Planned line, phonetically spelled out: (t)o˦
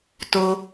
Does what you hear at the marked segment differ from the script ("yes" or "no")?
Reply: no